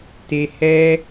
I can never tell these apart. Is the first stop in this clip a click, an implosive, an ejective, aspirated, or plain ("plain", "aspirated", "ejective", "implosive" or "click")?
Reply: plain